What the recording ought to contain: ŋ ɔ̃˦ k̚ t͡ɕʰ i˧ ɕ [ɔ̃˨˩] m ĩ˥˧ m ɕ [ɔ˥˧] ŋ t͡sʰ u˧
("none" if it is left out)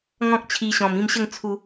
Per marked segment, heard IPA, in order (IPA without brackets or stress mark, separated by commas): ɔ̃˨˩, ə˥˧